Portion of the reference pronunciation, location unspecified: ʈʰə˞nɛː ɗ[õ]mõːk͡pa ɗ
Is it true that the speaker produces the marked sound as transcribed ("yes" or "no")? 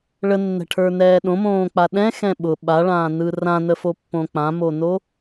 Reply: yes